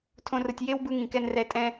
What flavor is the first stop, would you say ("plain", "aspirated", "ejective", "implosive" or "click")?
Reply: aspirated